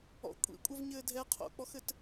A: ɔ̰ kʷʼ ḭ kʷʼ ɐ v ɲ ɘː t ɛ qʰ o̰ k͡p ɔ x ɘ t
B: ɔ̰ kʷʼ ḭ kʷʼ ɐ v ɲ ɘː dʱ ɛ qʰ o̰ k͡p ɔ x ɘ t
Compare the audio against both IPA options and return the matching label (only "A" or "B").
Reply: B